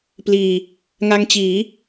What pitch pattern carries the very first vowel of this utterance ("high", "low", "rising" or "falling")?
low